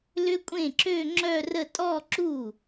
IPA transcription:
lʏ˦˥kʷʼẽ˥˩ǁø˥˧ ŋ͡ǁœ˥˧rə˥˧ tʼɔ˥˧ǁu˥˩

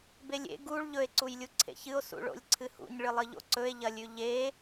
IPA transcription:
belʲḛ ɡuɭ ʎɵe̯ ǀujlʲuǀʰḛçɨo̯ sṵɭo̰lʲǀʰɨhṵɲ ɭɨlˠɨʎo̰ǀɵe̯ ʎɐlʲʉʎe

